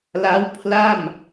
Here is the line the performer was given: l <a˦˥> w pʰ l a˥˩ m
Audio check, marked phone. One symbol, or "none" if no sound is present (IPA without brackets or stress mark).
a˦˥